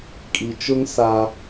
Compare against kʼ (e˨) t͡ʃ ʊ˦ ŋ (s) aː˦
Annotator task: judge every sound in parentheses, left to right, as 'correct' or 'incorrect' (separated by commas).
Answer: incorrect, correct